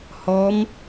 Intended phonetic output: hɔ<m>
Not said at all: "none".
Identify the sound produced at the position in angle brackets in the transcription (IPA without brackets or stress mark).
m